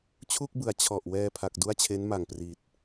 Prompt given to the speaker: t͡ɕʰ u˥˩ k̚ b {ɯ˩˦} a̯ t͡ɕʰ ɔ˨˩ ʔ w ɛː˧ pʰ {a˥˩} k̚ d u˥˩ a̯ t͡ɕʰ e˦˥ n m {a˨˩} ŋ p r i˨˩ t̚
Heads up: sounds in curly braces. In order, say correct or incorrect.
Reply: correct, incorrect: a˨˩, correct

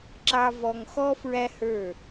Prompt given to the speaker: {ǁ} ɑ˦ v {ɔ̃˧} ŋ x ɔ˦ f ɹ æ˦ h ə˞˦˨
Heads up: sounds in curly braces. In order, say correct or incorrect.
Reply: correct, incorrect: ɔ˧

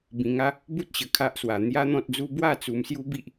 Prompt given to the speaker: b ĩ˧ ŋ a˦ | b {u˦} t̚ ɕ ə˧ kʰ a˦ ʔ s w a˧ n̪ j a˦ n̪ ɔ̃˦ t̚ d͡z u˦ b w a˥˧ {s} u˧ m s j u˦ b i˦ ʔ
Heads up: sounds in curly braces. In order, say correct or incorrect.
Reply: correct, incorrect: t͡s

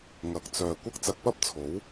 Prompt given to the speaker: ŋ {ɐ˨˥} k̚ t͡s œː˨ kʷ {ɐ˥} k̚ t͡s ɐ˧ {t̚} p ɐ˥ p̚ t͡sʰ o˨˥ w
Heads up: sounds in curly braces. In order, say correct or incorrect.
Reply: correct, correct, incorrect: k̚

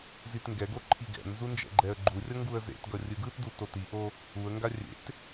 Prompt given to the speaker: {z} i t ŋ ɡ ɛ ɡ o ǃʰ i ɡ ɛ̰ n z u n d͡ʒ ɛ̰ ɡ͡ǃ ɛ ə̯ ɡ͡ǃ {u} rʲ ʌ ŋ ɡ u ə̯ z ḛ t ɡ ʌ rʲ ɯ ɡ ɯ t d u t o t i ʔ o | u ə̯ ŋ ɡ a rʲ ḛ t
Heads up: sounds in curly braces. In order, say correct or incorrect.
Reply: correct, correct

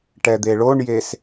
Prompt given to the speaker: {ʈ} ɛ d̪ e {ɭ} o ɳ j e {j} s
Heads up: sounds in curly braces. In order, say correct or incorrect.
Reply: correct, correct, incorrect: none

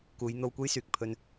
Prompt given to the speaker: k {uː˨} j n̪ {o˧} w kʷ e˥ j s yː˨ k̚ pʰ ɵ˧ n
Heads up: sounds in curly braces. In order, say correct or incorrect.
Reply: incorrect: uː˨˧, correct

